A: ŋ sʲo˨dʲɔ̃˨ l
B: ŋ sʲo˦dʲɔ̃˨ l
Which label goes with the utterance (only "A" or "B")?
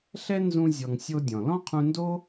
B